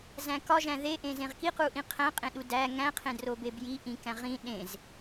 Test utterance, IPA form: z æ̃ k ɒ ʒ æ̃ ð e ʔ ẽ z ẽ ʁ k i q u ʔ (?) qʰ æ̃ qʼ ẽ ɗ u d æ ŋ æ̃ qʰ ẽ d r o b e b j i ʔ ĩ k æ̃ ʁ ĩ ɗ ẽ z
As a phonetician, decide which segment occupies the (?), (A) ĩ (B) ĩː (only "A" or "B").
A